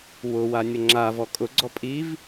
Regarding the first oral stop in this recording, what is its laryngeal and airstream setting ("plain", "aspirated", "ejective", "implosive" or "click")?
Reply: click